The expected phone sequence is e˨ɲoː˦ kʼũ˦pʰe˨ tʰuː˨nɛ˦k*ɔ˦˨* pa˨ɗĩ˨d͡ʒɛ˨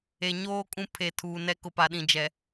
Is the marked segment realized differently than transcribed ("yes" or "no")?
yes